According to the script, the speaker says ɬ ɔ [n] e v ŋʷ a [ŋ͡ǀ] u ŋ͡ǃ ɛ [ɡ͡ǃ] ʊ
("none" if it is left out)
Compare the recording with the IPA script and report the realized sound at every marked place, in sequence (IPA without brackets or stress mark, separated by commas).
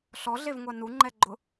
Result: ɮ, n, ɡ͡ǃ